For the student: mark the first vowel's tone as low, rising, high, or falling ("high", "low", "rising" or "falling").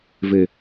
low